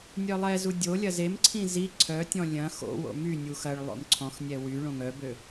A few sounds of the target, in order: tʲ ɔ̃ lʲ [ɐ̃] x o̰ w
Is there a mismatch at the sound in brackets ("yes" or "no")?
no